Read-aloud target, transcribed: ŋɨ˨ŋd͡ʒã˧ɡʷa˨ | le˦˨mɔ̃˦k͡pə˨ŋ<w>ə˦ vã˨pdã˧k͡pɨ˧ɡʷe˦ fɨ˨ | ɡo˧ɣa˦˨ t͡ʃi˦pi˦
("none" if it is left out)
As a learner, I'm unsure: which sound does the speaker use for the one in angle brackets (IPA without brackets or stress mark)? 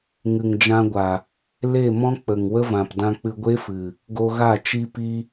w